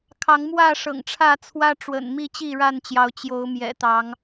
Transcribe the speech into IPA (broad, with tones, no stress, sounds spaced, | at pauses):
kʰ ɑ˨˦ ŋ m w ä˥˨ ʂ ɤ̰˨˩ ŋ ʈ͡ʂʰ ä˥˨ t͡sʰ w ä˦ ʈ͡ʂ w ə̰˨˩ n m i˥˨ t͡ɕ i˥˨ ɻ a˥˨ n t͡ɕ j ɑ˨˦ ʊ̯ t͡ɕ j o˨˦ ʊ̯ m j ɛ̰˨˩ t̪ ɑ˨˦ ŋ